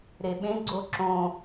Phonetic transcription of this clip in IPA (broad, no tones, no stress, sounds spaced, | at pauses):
ɾ e ɓ ẽ ɡ͡ǀ o ǁ õ